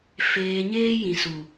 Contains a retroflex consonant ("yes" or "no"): no